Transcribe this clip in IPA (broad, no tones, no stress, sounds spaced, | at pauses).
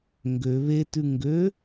ŋ ɡ ø β e t ʉ ŋ ɡ ø